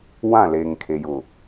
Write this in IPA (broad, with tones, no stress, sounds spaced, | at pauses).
w ã˦˨ l eː˨ ŋ kʰ e˨ j ʊ˨